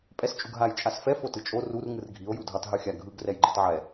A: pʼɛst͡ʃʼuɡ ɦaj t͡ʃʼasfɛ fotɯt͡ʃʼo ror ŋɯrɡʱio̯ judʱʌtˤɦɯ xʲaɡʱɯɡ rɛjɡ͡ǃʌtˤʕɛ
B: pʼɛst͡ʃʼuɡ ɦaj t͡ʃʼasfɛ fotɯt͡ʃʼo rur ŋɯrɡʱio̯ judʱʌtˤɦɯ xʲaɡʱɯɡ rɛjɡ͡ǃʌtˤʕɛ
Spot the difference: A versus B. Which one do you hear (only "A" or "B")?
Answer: B